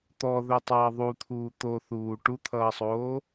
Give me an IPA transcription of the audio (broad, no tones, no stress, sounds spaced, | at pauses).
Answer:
t̪ ɔ ð ɵ tˤ ʌː ðˤ u t̪ʰ uː t̪ o θ uː ʈ u t̪ʰ ʌː sˤ oː